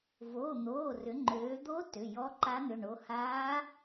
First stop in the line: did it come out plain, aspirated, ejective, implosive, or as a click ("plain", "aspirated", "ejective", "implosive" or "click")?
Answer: click